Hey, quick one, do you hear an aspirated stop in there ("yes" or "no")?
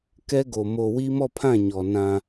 yes